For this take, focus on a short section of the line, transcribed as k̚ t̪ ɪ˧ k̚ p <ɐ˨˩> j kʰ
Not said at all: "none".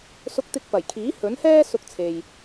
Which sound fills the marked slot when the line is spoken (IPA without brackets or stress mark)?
ɐ˨˩